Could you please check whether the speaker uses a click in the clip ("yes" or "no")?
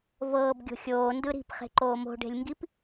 yes